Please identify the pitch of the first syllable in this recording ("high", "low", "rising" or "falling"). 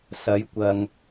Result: rising